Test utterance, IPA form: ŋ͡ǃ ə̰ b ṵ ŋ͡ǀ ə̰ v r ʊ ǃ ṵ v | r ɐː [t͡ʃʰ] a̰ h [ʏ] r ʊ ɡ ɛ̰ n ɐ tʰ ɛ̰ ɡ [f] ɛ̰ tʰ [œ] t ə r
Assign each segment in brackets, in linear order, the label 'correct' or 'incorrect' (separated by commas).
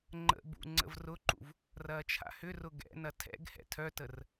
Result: correct, correct, incorrect, correct